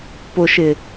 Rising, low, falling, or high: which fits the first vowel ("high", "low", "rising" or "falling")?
low